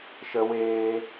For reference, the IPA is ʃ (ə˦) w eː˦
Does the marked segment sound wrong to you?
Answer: no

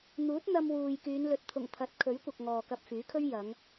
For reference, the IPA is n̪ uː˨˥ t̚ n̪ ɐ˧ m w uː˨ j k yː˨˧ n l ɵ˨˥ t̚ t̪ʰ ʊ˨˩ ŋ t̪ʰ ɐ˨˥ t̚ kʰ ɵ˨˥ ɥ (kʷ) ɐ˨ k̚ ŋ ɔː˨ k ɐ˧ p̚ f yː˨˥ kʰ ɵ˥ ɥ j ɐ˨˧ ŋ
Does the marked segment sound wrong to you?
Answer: no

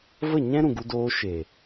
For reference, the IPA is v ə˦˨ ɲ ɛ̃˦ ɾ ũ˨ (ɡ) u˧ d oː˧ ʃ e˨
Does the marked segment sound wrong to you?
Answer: no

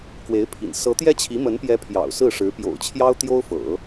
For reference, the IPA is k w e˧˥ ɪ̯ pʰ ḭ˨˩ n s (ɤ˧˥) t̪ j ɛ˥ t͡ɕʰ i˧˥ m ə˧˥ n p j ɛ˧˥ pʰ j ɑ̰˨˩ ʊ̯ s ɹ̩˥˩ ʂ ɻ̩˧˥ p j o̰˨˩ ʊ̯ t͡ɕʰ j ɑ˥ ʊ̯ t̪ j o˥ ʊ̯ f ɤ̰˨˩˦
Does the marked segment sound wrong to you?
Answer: no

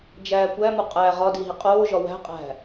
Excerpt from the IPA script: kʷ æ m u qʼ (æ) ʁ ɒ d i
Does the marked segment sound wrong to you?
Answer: no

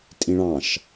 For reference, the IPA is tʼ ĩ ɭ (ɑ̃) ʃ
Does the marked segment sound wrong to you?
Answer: no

